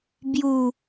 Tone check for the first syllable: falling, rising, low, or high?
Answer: low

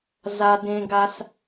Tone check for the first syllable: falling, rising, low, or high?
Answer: high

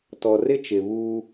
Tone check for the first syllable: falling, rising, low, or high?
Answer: low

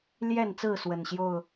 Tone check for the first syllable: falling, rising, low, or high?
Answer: falling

